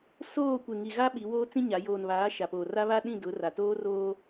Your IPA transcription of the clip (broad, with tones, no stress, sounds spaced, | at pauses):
s oː˦˨ kʷ e˨ ŋ i˨ ɣ a˦ ɓ i˨˦ w oː˦ t͡s ĩ˦ ɲ a˨˦ j oː˨ n β aː˨˦ ʃ a˨ p oː˨ r a˦ β a˦ ɗ ĩ˦˨ d ʊ˨˦ r a˨ t oː˦ r oː˦